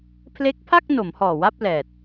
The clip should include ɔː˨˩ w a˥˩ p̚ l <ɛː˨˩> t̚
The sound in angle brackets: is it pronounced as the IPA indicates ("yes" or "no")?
yes